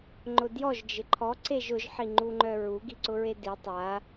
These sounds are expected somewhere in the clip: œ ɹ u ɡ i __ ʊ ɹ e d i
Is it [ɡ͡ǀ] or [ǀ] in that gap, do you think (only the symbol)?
ǀ